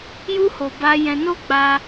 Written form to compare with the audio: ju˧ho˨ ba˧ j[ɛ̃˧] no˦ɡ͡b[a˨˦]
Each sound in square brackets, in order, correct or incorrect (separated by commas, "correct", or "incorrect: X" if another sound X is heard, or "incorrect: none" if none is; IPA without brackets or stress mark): correct, incorrect: a˧